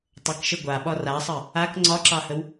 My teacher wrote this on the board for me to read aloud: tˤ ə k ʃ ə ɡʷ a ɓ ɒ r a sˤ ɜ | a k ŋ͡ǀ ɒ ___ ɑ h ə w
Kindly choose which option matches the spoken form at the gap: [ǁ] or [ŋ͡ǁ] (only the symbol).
ǁ